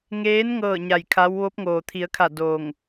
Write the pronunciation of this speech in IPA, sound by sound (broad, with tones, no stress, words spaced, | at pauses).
ŋeː˧˥n ŋɤː˥˨ɲa˧˩jkʰa˧˥w ʋo˧˥p̚ŋoː˩t̪ʰi˩˧ə̯kʰa˧˩ doː˧˩ŋ